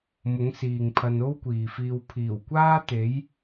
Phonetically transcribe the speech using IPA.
m ʊ˨˥ ŋ s iː˨ ŋ pʰ ɐ˧ n o˥ w kʷ iː˨ f iː˧ w pʰ iː˨˩ w kʷ aː˥ t̪ e˨˥ j

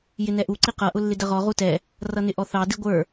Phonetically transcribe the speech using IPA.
j ɪ n ɛ ʔ u ǀ i q ʌ ʔ ʊ lː ɪ d ə ʁ ɔ ʁ u t ɛ | r ʌ n ɪ ʔ ɔ θ ɑ d i ɡʷ ə˞

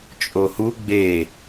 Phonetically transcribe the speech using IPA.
t͡ʃʼ o h u ɡ͡b e

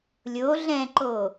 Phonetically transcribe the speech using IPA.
lʲ o ɮ ɛ̃ ǃ o

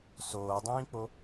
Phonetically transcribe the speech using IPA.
s oː dˤ ĩː k͡p o

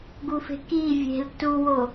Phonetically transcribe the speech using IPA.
ɡ u f e̤ k i vʲ e̤ l t u w o

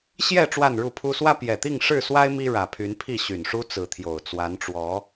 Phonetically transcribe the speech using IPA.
ɕ j ɛ˥˨ ʈ͡ʂ w a˥˨ n ɻ u˥˨ pʰ u˦ s w ä˦ p j ɛ˨˩ t̪ i˥˨ ŋ ʂ ɻ̩˥˨ s w a˦ ɪ̯ m i˦ ɻ ä˨˩ pʰ y˨˦ n pʰ i˥˨ ɕ y˨˩ n ʂ u˦ t͡s ɹ̩˨˦ t̪ʰ j o˨˩ ʊ̯ t͡s w a˨˦ n ʈ͡ʂ w ɔ˨˦

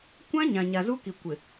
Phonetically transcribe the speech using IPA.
kʷ ã˦ ɲ ã˨ ɲ a˨ z u˦ k i˨ kʷ ɪ˨

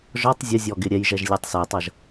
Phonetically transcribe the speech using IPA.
ʒ ɔ tˤ zʲ ə zʲ ɔ ɡ ɪ ɾʲ ɛ j ʒ ɛ ʒ lʲ ɛ tˤ s ɛ tˤ ʌ ʒ

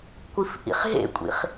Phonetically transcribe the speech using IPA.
kʷ i f ʔ ḭ χ ɦ ḛ kʷʼ ḭ χ

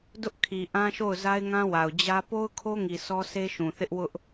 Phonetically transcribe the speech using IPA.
d ʊ˦ ʔ kʰ i˨ ʔ ã˦ ʃ o˦˨ ʊ̯ z a˦ ɪ̯ ŋ ã˦ w a˨ ʊ̯ d͡ʑ ä˦ p o˦ ʊ̯ kʰ o˦ ŋ i˨ sʰ ɔ˦ sʰ e˦ ʃ ũ˨ θ ɪ˦ ʔ w ʊ˦ ʔ

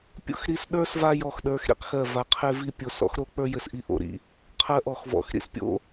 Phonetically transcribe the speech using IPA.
pʲ o̰˥ x ɾ i˦˨ s ɗ ə˞˥ s v a˥ j ɔ˦˨ x ɗ ə˞˧˥ x ɾ ḭ˥ q x ɜ˦˨ v a˧˥ qʰ e˥ v i˥ pʲ o˦˨ s ɔ̰˥ x ɾ o˧˥ k͡p ə˞˥ j ɘ˧˥ s ʔ i˥ ʔ o̰˧˥ ɾ ḭ˧˥ | qʰ ɜ˥ ʔ ɔ˦˨ x v ɔ̰˧˥ x ɾ ḭ˥ s pʲ o̰˥

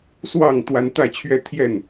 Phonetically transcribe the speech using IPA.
s w ɑ˥˨ ŋ t̪ w a˦ n t̪ ä˥˨ t͡ɕʰ ɥ ɛ˥˨ t̪ʰ j ɛ˥˨ n

